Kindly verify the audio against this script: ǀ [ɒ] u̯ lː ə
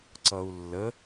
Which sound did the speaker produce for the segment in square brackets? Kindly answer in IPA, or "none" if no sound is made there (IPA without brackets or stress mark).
ʌ